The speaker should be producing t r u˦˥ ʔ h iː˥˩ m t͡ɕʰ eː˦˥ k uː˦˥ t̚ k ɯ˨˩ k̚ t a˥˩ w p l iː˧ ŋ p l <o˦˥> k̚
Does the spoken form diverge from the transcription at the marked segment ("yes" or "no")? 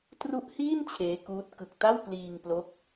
no